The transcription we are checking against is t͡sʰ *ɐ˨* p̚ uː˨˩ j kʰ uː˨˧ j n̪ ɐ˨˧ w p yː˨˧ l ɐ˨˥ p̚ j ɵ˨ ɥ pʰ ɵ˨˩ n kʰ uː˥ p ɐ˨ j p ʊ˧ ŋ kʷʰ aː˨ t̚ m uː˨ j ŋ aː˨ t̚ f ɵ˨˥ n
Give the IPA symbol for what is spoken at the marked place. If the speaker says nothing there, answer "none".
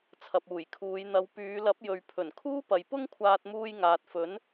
ɐ˨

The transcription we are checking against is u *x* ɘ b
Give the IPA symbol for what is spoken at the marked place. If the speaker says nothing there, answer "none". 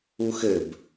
x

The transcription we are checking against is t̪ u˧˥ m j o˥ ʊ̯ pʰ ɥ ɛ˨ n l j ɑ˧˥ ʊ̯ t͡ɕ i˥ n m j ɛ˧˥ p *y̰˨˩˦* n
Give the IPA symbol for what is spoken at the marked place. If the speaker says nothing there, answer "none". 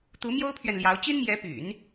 y̰˨˩˦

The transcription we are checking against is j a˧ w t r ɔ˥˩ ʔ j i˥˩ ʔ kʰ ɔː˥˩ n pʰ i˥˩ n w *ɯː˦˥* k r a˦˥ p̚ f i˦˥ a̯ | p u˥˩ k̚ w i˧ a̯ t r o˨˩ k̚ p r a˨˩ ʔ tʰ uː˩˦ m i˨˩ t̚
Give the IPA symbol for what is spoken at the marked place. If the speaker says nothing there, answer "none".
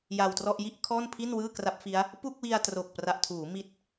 ɯː˥˩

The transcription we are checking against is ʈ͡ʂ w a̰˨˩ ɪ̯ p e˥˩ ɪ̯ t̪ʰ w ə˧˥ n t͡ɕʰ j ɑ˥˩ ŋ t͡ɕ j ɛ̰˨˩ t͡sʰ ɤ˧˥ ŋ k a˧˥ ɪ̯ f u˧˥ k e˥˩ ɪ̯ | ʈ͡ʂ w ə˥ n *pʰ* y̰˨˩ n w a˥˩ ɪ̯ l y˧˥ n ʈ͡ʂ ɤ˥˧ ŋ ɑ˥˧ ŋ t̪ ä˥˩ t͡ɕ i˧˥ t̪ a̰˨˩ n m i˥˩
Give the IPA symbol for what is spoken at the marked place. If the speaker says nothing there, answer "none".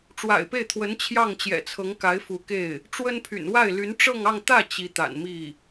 pʰ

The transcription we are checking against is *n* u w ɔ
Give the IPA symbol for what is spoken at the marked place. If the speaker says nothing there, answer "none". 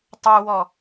tˤ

